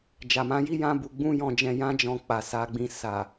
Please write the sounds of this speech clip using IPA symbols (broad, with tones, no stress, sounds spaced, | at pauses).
d͡ʒ a˨ m ã˨˦ j i˦ j ã˦ b u˧ ɡ͡b ũ˦ j ɔ̃˧ d͡ʒ ɛ̃˧ j ã˦ d͡ʒ ɔ̃˧ k͡p a˨ s a˧ ɡ͡b ĩ˧ s a˨